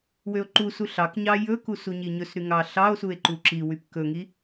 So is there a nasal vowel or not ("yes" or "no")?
no